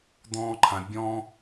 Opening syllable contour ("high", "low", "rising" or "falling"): high